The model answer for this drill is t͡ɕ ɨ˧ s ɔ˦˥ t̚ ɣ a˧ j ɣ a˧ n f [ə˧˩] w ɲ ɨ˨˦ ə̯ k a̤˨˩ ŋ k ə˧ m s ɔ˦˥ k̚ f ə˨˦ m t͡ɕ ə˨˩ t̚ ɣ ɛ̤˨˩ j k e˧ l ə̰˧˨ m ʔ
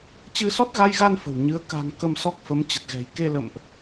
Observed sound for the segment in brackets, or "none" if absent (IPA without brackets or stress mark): ə̤˨˩